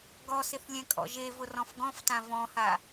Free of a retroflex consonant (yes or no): yes